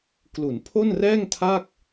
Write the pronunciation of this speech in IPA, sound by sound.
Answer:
k l u˩˦ n pʰ o˥˩ n r ɛː˥˩ ŋ tʰ a˥˩ k̚

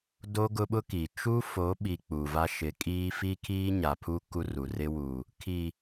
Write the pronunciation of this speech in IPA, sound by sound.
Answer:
d o˦ ɡ ʊ˦ ɓ ʊ˦ k i˨ t͡ʃ u˦ f o˨˦ ɓ i˨ k͡p u˨ v a˦ ʃ ɪ˨˦ kʼ iː˦ f i˦ kʰ iː˦ ɲ a˨ pʰ u˦ k u˦ r u˨ r ɪ˦ w u˨ | kʰ i˨

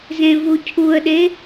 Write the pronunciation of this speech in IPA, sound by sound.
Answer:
z ẽ v u cʰ u ə̯ ɗ e

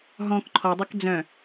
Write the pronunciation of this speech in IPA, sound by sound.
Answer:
ɦ ɔ̃ k ǃʰ ɔ dˤ o k d͡z œ̃

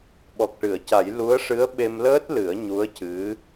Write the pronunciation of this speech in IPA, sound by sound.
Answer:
ɓ ɔ˨˩ k̚ ʈ ɨ˨˩˨ ə̯ c a˨˩˦ j l u˧˥ ə̯ ʂ ɨ˧˥ ə̯ ɓ e˧ m l əː˦˥ t̚ l ɨ˨˩˦ ə̯ ɲ u˧˥ ə̯ c ɨ˧˥

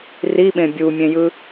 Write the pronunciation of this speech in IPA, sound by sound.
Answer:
r i ɓ ẽ bʲ u mʲ ẽ j ɯ

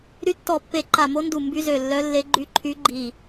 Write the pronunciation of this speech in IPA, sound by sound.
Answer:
ɾ y˧˥ tː ɔ˧˩ pː e˧˩ ǃ a˧˩ m o˧˥ n d u˧˩ m b y˧˥ z ø˧˩ lː œ˧˥ lː e˧˥ ɡ͡ǃ y˧˥ ǃʰ y˧˥ ɡ͡ǃ i˧˩

